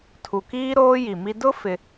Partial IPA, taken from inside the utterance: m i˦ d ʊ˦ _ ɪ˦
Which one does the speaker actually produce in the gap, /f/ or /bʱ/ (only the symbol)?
f